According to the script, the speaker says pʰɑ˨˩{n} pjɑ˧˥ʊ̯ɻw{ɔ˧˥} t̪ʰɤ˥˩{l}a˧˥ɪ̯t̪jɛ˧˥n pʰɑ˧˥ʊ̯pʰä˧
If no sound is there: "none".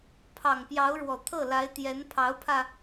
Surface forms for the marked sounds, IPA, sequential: ŋ, ɔ˨˩, l

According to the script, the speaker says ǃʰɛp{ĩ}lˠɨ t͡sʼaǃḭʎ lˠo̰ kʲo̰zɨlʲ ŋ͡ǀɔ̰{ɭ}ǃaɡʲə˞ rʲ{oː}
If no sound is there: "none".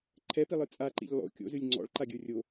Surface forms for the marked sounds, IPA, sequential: i, ɭ, o

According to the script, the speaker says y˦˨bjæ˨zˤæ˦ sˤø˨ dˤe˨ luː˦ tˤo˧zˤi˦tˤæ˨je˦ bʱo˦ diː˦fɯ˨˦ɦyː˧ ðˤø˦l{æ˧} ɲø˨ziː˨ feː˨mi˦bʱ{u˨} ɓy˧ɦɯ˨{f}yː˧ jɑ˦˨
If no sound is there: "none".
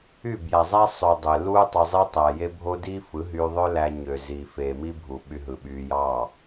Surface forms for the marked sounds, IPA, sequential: æ˧, u˨, ɓ

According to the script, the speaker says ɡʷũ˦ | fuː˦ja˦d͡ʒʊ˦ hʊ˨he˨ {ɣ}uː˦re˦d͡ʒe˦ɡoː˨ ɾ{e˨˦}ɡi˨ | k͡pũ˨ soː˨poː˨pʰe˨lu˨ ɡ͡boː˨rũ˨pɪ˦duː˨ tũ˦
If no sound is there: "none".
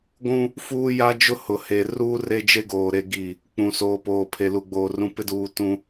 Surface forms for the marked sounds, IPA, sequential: r, e˨

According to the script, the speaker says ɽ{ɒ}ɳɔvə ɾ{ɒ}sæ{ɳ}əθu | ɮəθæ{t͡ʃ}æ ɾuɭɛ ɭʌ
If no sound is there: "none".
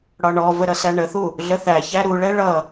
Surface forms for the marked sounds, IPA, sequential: ɒ, ʌ, ɳ, ç

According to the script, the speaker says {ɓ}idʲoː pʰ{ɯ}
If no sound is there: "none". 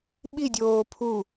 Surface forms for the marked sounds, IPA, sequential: ɓ, u

